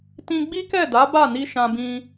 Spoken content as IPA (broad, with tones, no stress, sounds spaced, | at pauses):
t ĩ˧ ɡ͡b i˦ k ɛ˦˨ d a˨˦ b a˦˨ n i˧ ʃ ã˧ b ĩ˧